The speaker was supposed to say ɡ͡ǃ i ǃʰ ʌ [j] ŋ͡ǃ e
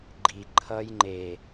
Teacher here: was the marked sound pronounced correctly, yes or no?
yes